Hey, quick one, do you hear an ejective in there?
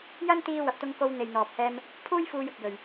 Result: no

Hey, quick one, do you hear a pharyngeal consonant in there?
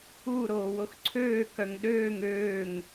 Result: no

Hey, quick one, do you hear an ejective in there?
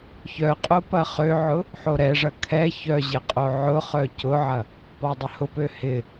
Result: yes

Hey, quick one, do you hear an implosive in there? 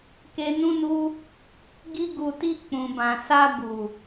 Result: no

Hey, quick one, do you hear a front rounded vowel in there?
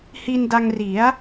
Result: no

